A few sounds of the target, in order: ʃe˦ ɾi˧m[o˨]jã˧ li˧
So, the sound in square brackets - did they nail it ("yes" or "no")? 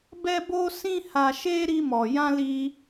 no